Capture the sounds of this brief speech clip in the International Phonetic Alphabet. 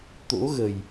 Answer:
t̪ o̰˧˥ ɣ ə˨˩ j

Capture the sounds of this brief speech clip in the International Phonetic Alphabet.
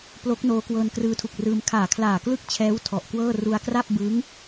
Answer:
p l o˦˥ k̚ n oː˦˥ k w ɤː˧ n k r ɯː˧ tʰ u˨˩ k̚ r ɯː˧ m kʰ aː˨˩ kʰ l aː˨˩ k l ɯ˥˩ k̚ t͡ɕʰ ɛː˦˥ w tʰ ɔ˨˩ ʔ k w ɤː˥˩ r u˧ a̯ k r a˥˩ p̚ b ɯː˦˥ ŋ

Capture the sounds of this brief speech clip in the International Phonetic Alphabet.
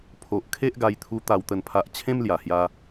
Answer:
pʰ o˨ ʔ kʰ e˦ ʔ ɡ a˧ j t̪ʰ u˧ t̪ a˨˩ w t̪ ə˨˩ n pʰ a˨ ʔ t͡ɕʰ ẽ˦ m l j a˨˩ h j a˧

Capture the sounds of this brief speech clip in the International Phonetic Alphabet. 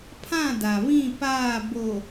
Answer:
pʰ ã˦˨ d a˨ β ĩ˦˨ p aː˦˨ b o˨

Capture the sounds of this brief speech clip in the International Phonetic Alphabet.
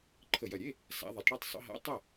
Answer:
ǃʰ ə˨˩ j ɐ˨˩ ɾʲ e˧˥˧ | s a̰˩˧ ðˤ ɨ˩˧ tˤ ɽ e˥˩ tˤ sˤ ə̰˩˧ ɦ a̰˧˥˧ tˤ ɐ˥˩

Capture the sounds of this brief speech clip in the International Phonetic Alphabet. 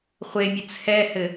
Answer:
χʷ e mʲ ə t͡sʰ ɛ h ɘ

